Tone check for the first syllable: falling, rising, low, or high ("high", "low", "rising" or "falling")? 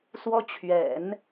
high